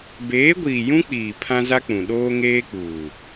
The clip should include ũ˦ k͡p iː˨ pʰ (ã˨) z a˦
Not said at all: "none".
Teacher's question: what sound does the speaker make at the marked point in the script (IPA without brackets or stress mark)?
ã˦